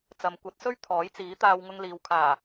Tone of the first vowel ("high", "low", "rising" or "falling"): low